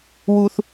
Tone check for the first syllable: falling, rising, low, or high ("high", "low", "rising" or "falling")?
high